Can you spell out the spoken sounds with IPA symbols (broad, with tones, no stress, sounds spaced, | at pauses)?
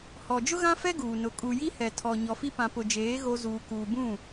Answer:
h ɔ˨ d͡ʒ ʊ˦ ɣ ã˦ f ɛ˦ ɡ uː˨ n ʊ˨ kʼ u˨ j i˦ h ɛ˨ tʰ ɔ˨ ɲ ɔ˨ f i˦ p ã˨ p ʊ˨ d͡ʒ eː˨˦ ɣ o˦ z uː˨ k uː˨ b ũ˦˨